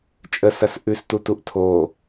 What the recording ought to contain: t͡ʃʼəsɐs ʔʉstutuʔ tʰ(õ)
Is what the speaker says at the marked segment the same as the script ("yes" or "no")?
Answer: no